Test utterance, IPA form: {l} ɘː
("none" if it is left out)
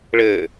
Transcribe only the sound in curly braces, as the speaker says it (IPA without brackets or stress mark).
ɭ